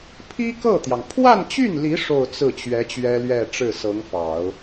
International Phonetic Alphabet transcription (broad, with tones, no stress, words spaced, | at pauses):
pʰi˥kɤ˥˩t̪jɑ˩ŋ pʰwa˥˧nt͡ɕy˥˩nli˧˥ ʂo˥˧ʊ̯t͡sɹ̩˥˩t͡ɕɥɛ˧˥ t͡ɕɥɛ˥lɥɛ˥˧ʈ͡ʂɻ̩˥˩ sɤ˧˥ŋfɑ˨˩˦ʊ̯